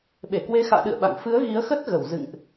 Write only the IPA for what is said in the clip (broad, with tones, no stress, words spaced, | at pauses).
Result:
ɓe˧˩kwe˨˦xa̰ː˧˨ɗɨ̰˧˨ə̯ ɓa̰˧˨ŋ fɨ˨˦ə̯ ɣi˨˦ə̯xə˦˥t̚ ɣə˧˩wzɨ̰˧˨ŋʔ